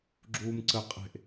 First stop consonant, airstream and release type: click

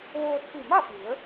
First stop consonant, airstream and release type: plain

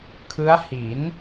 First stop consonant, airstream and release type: aspirated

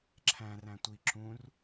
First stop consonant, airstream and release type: click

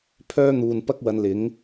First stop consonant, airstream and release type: aspirated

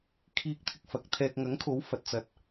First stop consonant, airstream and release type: aspirated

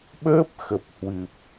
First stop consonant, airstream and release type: implosive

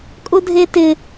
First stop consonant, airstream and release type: ejective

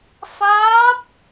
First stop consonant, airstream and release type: plain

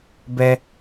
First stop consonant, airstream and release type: plain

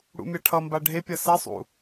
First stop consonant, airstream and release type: aspirated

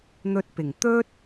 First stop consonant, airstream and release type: plain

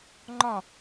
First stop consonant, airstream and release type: click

